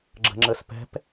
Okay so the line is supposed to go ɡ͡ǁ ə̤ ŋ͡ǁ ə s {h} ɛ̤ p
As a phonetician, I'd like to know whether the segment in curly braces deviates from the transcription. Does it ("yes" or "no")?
yes